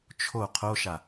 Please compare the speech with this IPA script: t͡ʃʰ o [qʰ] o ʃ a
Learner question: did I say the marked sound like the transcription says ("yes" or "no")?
yes